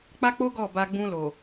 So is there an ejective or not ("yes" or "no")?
no